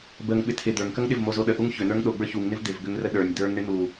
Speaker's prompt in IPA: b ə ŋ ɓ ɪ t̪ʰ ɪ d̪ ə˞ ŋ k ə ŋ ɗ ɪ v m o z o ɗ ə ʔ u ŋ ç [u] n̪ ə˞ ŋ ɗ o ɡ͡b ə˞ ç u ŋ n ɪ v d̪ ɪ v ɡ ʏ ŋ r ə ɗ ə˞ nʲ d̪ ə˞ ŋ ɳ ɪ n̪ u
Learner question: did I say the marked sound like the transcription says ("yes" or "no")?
no